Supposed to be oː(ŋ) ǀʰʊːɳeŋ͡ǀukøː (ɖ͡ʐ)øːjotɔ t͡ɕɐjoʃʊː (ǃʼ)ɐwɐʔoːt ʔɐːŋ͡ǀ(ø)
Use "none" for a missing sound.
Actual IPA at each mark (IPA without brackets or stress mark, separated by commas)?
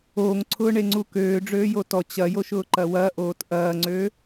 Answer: ŋ, ɖ͡ʐ, ǃ, ø